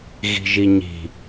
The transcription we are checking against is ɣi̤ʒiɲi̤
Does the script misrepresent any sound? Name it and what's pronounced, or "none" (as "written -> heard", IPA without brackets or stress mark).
none